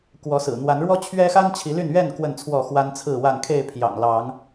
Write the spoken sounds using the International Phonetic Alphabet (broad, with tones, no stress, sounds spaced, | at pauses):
k w ɔ˨˦ s ɹ̩˨˩ n̪ w a˨˦ n ɻ w ɔ˦ t͡ɕʰ ɥ ɛ˦ x a˦ n t͡ɕʰ i˨˦ l y˥˨ n ɥ ɛ˥˨ n k w ə˥˨ n t͡sʰ w ɔ˥˨ x w a˦ n t͡sʰ ɹ̩˥˨ w a˥˨ n kʰ e˥˨ ɪ̯ pʰ j ɑ̰˨˩ ŋ l ɑ˨˦ ŋ